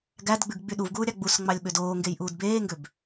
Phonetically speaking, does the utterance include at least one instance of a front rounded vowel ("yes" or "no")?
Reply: yes